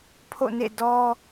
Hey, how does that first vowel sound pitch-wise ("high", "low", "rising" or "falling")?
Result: falling